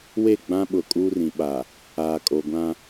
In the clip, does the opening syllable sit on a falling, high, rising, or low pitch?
falling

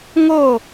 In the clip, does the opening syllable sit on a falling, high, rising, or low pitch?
falling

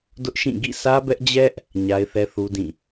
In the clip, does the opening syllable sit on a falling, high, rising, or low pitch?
high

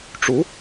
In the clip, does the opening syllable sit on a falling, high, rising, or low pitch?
rising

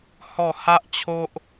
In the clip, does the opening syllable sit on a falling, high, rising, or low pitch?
falling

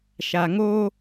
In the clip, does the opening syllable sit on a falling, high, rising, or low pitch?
low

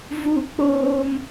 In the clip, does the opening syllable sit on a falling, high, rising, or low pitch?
falling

